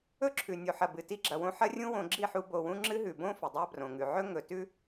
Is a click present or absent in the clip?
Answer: present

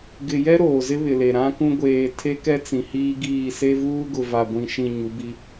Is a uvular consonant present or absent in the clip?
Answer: absent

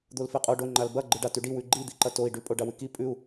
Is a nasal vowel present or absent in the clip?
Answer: absent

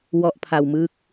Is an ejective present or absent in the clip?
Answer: absent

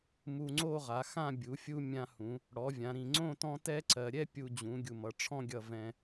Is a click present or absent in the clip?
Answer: present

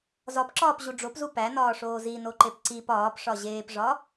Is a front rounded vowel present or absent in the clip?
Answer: absent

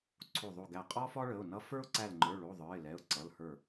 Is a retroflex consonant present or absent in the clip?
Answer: present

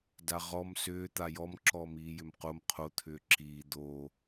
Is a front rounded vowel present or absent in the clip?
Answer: present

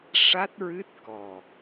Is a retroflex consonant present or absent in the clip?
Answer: present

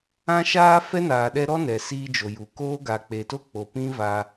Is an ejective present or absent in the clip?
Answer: absent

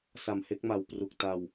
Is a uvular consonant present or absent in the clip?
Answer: absent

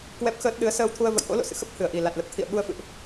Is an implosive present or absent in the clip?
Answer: present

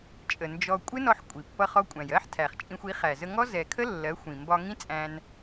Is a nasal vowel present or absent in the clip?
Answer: present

